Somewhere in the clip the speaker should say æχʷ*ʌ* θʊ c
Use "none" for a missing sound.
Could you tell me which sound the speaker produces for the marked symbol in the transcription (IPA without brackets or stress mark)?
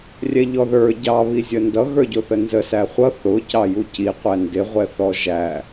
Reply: ʌ